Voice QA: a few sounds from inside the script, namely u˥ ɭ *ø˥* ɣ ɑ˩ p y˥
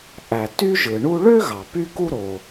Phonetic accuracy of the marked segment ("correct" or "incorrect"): correct